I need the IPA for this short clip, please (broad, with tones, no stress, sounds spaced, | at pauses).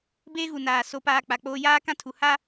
b eː˦ ɣ u˨ n aː˨ s o˨ p aː˨ k͡p a˨ k͡p oː˦ j aː˦ k ã˦ tʰ u˨ h a˦